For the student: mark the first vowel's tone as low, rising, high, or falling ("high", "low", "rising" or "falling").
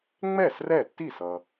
falling